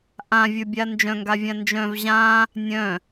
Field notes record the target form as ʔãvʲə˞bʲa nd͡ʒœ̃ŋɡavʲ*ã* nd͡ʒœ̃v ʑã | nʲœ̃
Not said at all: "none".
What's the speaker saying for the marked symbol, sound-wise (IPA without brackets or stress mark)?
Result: ã